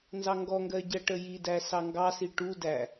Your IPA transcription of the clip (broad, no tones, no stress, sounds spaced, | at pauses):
n z ɑ ŋ ɡ ɔ ŋ ɡ ɜ ɟ ɜ ʈ ə j i d æ s ɑ ŋ ɡ ɑ s i ʈ u d æ